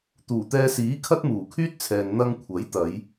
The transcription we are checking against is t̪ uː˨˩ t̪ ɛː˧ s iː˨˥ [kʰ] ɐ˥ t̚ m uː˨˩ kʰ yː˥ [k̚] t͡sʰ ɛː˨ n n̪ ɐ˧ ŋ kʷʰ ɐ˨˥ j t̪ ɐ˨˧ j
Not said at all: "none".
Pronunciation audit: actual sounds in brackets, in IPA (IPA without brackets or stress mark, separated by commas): kʰ, t̚